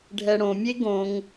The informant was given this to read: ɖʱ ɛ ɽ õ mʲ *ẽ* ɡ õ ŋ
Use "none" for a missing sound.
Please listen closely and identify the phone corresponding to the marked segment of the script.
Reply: e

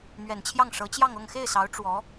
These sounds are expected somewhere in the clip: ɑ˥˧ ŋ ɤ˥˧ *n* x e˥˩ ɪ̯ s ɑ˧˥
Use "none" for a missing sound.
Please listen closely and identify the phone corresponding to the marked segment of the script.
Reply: ŋ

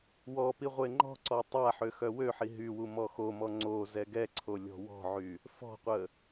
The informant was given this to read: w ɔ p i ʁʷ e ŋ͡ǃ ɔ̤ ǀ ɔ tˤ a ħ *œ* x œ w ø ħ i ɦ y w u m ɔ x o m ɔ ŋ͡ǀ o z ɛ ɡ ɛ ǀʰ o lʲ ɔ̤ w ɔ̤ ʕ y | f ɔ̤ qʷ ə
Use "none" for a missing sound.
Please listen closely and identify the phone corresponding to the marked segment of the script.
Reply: ø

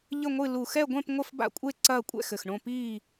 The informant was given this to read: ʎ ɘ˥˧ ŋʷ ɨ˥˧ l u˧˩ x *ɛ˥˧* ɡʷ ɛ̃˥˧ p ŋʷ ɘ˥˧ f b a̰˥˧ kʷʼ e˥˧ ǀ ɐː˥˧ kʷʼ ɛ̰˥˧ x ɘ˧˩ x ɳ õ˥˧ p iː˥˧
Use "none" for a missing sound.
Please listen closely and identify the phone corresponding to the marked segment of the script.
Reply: ɛ˥˧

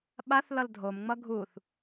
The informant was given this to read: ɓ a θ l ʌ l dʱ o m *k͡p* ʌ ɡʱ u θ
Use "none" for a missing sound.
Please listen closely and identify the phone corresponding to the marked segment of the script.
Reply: ŋ͡m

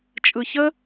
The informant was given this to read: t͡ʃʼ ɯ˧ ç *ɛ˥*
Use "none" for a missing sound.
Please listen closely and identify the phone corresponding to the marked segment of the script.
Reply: ə˥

